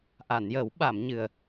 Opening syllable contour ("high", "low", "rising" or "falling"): low